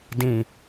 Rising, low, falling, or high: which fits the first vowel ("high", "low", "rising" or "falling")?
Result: low